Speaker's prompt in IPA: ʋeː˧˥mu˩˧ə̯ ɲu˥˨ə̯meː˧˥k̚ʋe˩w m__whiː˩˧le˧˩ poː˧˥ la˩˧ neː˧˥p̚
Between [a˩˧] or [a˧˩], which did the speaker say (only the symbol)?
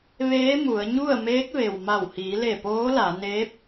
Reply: a˧˩